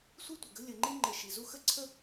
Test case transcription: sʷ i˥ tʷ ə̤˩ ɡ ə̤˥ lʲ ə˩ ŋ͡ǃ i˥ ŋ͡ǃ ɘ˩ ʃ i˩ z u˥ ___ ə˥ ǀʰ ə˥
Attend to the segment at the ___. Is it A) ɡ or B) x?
B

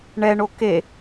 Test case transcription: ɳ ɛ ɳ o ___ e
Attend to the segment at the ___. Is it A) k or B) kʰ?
A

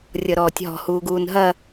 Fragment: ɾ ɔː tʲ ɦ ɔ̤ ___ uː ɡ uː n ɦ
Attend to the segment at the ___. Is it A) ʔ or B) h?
B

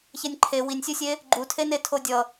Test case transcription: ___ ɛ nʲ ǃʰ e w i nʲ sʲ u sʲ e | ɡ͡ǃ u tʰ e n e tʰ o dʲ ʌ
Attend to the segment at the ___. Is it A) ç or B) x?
A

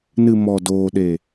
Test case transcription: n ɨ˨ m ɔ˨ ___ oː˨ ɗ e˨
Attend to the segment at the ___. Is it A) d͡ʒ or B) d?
B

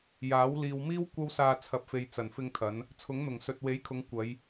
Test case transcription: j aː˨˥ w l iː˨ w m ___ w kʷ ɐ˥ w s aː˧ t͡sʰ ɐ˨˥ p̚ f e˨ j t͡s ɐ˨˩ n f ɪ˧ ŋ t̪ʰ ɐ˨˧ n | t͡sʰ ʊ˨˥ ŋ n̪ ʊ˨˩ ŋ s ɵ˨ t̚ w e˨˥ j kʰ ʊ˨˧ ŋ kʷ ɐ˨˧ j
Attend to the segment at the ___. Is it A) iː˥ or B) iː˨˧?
A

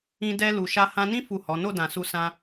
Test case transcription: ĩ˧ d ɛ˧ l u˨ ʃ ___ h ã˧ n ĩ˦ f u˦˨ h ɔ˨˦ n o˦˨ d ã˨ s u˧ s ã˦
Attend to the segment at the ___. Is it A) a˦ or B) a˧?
B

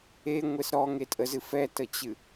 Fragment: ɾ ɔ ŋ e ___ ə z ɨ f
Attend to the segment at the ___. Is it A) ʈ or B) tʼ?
B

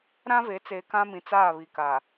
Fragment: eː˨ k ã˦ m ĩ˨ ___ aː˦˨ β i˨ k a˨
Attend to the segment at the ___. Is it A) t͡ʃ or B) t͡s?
B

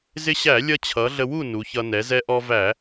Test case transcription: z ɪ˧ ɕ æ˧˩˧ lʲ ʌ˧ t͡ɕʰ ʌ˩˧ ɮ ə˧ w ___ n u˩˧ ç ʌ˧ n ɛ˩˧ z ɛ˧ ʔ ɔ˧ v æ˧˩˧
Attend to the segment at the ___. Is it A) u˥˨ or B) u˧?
A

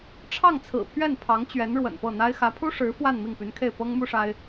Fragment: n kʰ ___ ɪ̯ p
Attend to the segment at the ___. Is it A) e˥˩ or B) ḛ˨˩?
A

